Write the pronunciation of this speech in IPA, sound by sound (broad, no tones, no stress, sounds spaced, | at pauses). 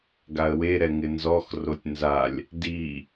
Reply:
ɡ a ə̯ w e ɾ ɛ ŋ ɪ n z ɔ x r o tʲ n z a lʲ | d i